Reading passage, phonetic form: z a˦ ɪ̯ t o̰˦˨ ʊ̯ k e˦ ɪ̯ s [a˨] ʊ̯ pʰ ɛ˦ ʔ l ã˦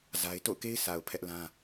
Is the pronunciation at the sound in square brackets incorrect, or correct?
correct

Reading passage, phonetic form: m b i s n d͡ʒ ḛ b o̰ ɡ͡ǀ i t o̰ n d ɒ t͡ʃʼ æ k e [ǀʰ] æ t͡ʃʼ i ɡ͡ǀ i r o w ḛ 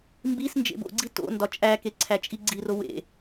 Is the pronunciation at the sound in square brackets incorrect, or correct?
correct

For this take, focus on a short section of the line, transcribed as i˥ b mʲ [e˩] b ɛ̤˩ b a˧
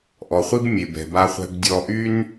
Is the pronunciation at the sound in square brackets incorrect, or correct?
correct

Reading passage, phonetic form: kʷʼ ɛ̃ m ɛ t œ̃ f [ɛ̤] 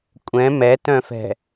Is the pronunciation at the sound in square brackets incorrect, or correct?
correct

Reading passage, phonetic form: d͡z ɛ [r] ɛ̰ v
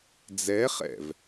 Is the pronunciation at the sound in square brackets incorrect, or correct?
incorrect: χ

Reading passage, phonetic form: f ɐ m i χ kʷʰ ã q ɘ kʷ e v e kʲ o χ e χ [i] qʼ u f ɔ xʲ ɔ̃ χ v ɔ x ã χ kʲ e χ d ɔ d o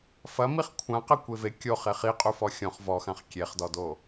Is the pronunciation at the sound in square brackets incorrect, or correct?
correct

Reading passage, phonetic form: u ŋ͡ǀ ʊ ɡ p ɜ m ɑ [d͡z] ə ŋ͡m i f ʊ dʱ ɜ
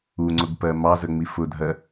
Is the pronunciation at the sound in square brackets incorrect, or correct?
incorrect: z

